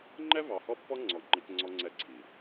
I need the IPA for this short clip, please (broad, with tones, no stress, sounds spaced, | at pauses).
ŋ͡ǃ ɛ˦ v ɑ˨ h ɔ˦ pː ɔ˦ ŋ͡ǀ ɔ˨ ŋ͡ǃ i˦ k ŋ͡ǀ ɔ˦ ŋ͡ǀ ɛ˦ ǀʰ i˨